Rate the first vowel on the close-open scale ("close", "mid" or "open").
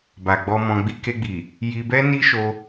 open